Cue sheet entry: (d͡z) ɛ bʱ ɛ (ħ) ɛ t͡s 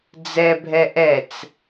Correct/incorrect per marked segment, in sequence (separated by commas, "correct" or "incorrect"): correct, incorrect